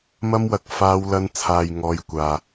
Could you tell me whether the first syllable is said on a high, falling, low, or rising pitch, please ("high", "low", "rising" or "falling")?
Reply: high